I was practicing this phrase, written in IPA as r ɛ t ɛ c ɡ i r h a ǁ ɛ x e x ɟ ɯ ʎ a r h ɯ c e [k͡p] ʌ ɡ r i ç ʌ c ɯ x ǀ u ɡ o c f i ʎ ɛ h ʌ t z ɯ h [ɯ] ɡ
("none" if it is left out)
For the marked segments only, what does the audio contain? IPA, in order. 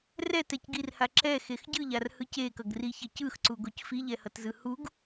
k, u

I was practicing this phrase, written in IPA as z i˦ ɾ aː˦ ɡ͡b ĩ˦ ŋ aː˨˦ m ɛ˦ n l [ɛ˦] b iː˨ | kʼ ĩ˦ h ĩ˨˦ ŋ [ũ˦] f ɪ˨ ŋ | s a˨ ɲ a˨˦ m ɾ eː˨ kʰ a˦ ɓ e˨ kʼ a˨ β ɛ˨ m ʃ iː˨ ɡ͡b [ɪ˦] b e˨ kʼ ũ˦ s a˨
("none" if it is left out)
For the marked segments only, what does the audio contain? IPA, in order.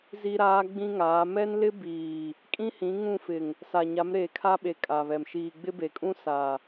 ɪ˦, ũ˦˨, ɪ˦

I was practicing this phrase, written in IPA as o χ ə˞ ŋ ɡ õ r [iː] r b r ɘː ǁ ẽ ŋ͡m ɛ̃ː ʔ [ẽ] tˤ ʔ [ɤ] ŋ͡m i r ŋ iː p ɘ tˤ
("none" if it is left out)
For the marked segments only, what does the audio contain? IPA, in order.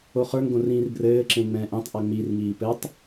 ĩː, ẽ, ɤ

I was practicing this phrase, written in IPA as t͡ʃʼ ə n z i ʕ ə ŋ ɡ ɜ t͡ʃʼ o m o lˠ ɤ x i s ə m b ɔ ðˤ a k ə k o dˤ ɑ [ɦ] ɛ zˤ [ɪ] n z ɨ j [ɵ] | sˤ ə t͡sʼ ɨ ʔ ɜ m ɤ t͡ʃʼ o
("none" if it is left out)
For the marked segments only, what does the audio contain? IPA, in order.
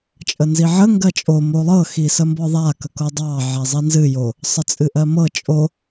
ʕ, i, o

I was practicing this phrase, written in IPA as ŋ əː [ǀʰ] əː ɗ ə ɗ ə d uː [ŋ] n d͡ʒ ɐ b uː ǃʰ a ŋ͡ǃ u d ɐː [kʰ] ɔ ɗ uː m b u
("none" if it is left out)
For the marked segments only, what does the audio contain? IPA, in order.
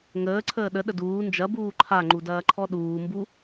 ǀʰ, none, ǃʰ

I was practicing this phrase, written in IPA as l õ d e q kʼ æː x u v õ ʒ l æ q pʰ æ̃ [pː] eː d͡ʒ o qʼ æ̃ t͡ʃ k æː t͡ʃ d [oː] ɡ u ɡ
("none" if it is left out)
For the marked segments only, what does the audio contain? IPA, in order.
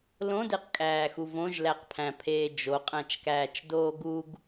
pʰ, oː

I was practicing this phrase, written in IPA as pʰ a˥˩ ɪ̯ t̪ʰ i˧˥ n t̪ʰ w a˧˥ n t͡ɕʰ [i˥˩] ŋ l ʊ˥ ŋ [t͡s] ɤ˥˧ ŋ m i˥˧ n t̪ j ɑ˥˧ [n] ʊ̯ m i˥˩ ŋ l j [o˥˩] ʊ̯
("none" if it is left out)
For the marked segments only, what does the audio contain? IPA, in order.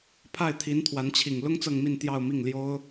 i˨˩, t͡s, none, o˥

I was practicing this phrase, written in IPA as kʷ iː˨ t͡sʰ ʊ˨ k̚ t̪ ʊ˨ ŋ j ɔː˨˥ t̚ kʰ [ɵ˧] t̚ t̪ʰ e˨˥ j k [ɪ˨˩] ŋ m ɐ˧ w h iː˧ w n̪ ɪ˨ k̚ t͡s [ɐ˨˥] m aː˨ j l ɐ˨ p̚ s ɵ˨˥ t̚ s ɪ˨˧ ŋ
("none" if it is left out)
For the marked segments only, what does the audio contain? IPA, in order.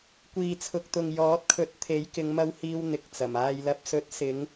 ɵ˨˥, ɪ˨˧, ɐ˨˩

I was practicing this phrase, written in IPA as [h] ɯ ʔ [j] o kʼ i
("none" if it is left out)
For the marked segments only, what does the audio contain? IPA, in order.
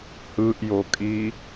h, j

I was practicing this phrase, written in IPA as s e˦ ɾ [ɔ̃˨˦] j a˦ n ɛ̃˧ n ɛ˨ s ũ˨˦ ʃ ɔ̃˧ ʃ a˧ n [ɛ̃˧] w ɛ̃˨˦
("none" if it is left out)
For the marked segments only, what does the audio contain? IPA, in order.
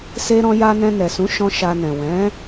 ɔ̃˦, ɛ̃˨

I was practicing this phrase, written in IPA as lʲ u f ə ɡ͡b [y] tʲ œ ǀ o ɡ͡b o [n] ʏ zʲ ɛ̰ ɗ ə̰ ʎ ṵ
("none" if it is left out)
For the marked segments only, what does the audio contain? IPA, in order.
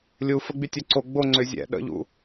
y, ŋ͡ǀ

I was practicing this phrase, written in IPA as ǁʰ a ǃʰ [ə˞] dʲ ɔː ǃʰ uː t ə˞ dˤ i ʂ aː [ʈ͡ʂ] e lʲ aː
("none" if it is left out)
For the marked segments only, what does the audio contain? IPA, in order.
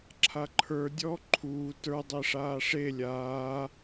ə˞, ʂ

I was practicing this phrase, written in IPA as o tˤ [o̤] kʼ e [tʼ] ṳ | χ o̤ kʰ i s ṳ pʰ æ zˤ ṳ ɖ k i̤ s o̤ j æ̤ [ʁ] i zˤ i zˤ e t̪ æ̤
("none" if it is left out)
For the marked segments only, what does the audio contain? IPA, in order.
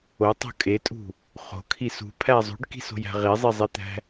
o̤, tʼ, ʁ

